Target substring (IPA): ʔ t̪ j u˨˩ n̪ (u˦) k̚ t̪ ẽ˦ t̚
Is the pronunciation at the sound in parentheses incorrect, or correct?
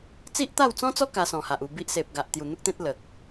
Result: correct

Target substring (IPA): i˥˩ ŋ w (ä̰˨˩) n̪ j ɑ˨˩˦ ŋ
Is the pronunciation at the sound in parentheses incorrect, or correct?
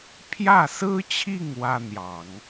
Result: incorrect: ä˥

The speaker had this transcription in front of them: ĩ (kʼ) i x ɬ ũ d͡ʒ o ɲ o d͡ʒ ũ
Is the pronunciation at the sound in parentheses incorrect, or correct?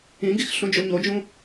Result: incorrect: ɡ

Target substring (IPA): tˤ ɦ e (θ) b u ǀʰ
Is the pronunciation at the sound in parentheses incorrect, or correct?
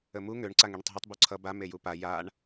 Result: incorrect: tˤ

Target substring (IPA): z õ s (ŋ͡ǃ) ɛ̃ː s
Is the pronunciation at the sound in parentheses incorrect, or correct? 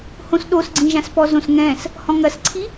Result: incorrect: ŋ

